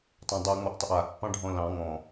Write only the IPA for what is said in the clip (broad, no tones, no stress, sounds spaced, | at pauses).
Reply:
tˤ ã dˤ a ŋ͡m ɔ ʔ tˤ ɪ ʔ aː ʔ pː ɑ̃ ɖʱ ɔ̃ l ɑ̃ ŋ ɔ̃